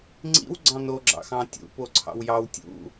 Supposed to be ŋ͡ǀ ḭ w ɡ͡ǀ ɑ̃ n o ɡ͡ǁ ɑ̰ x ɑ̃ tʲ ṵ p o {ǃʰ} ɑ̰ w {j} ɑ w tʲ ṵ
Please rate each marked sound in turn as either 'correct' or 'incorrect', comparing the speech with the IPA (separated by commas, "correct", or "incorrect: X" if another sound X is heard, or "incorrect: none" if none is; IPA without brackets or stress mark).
incorrect: ǀʰ, correct